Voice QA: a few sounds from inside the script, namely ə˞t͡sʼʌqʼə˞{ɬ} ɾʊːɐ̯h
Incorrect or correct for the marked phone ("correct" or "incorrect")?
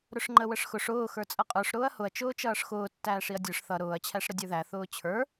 incorrect